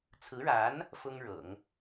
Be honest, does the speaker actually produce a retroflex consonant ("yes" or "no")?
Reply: yes